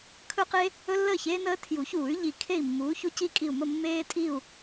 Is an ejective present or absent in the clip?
present